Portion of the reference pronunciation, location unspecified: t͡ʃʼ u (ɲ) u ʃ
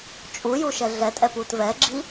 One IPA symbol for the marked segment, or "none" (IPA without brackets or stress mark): j